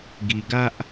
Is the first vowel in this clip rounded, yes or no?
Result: no